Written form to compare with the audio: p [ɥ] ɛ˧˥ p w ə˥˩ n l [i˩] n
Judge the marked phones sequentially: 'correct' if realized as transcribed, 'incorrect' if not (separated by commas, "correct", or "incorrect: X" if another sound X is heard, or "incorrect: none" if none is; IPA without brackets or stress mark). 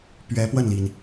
correct, correct